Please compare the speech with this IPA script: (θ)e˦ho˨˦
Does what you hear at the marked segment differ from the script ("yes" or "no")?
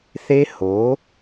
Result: no